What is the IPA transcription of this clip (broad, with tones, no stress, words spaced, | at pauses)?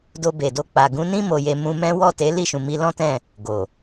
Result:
do˧be˨do˧ k͡pa˨ɡũ˨˦nĩ˦ mo˧je˧ mũ˧ mɛ̃˦ wɔ˦˨te˨˦ li˦˨ʃũ˨ mi˧lɔ̃˦tɛ̃˦˨ | ɡo˨